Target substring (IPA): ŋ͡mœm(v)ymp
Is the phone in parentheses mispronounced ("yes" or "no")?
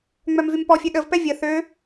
no